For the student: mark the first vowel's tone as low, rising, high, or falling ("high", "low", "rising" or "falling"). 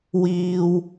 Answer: low